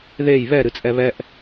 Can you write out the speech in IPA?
ð e j β ɛ ɾ ɨ t͡sʼ ɛ β ɛ ʔ

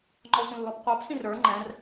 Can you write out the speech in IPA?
ŋ͡ǃ ɔ sʷ ĩ lː ɔ p qʷ ɑ p s ĩ r ə˞ ŋ͡ǃ ɛ̃ r

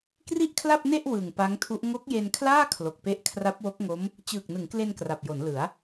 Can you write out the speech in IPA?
k r i˥˩ ʔ kʰ l a˥˩ p̚ n e˥˩ ʔ w ɯ˨˩ ŋ p a˦˥ ŋ tʰ u˦˥ ʔ ŋ o˦˥ k̚ j e˧ n kʰ l aː˥˩ kʰ l o˨˩ k̚ p e˥˩ ʔ kʰ r a˦˥ p̚ w o˦˥ k̚ ŋ o˦˥ m | t͡ɕ ɯː˨˩ k̚ n ɯ˩˦ ŋ k l e˧ n k r a˨˩ p̚ j o˩˦ n l ɯ˩˦ a̯

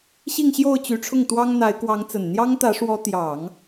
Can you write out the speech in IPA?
ɕ i˥˧ ŋ ɕ j o˥˩ ʊ̯ t͡ɕ y˧˥ ʈ͡ʂʰ ʊ˥˩ ŋ t̪ w ɑ˥ ŋ n̪ a˧˥ ɪ̯ k w ɑ˧˥ ŋ t͡s ə˨˩ n n̪ j ɑ˥ ŋ t̪ ä˧˥ ʂ w ɔ˧˥ t̪ j ɑ˨˩˦ ŋ

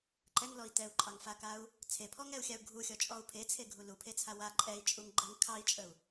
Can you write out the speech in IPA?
ǃ ɛ ŋ l ɔ i̯ t ɛ u̯ ǃʼ ɑ ŋ f a k a u̯ | t͡sʰ e pʰ ɔ ŋ ɛ u̯ xʲ a u̯ ɡʱ u xʲ ɔ t͡ʃʼ ɔ u̯ pʰ e t͡sʰ e ɡʱ u l u pʰ e t͡sʰ a w a ǃʼ ɛ i̯ t͡ʃʼ u ŋ ɡ͡ǃ ə ŋ kʰ ɑ i̯ t͡ʃʼ ə u̯

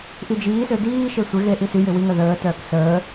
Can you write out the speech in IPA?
ʔ i d͡ʒ iː s ø d iː ʃ e sʷ ɪ ɣ e ʔ i s y j ɪ w i ŋ œ ð əː t œː k s əː

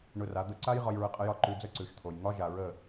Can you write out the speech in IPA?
ɳ ʊ˧ r a˩˥ d̪ ə˧ ǀ a˥ j ʁ ɒ˧ j ɹ ə˧ qʼ ə˧ j ɒ˥˩ ǃ ʉ˧ d͡z ə˥ ǀ ʉ˩ ʃ t̪ʰ o˩ j ŋ ɒ˥ ʒ a˩ ɹ ə˥˩

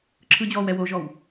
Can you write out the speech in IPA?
ǁʰ ɯ d͡ʑ ɔː w ɛ w o ʒ ɔ w

